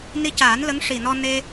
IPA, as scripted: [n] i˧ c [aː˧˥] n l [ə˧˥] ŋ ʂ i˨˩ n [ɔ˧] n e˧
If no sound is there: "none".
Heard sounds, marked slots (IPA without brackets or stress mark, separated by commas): n, aː˨˩˦, ə˧˥, ɔ˧